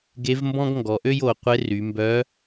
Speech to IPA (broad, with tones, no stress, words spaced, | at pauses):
ɡe˧˥vmbɔ̃˥ɡ ŋɡɔ˩˧ʔø˥jo˩˧qʷe˧˥ ry˩˧mbœ˧˥